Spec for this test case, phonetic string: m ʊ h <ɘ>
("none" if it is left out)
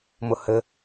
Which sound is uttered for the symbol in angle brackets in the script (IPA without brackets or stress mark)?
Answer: ɘ